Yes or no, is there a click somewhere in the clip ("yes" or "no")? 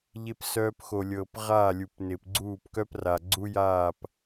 yes